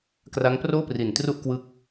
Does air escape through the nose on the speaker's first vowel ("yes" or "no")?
no